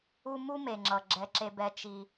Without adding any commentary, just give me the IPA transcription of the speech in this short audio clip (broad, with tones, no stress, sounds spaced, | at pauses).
u˦ m u˦ m e˨ ŋ͡ǁ ʌ˨ ɡ͡ǁ ɛ˦ ǁ e˦ b ɛ˦ t͡ʃ i˦